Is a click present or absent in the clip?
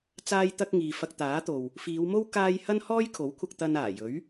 absent